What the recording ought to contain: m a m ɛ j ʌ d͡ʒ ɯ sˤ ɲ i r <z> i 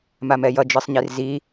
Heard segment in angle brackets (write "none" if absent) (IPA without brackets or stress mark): z